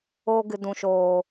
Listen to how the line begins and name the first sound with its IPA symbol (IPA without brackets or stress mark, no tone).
oː